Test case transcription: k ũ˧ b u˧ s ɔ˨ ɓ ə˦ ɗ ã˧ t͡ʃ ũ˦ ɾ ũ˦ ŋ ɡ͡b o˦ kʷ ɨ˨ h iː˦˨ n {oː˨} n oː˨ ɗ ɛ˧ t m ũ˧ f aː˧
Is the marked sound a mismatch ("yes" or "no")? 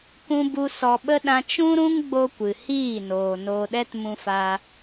no